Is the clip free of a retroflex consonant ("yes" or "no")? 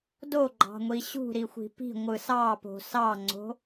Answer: yes